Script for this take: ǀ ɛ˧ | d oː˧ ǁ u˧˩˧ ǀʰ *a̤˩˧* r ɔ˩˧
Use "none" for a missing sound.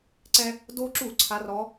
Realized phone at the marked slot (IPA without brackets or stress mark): a˩˧